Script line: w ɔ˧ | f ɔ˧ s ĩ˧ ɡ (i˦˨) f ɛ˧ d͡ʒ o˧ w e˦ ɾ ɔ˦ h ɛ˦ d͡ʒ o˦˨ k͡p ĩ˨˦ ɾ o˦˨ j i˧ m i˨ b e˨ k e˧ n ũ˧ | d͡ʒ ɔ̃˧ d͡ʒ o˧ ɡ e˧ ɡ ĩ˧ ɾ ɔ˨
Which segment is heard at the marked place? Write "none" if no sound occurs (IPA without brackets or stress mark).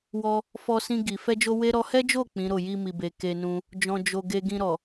i˨